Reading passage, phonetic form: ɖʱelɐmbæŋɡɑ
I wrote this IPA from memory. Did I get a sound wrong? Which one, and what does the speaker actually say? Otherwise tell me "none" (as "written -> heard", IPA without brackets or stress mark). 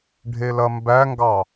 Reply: none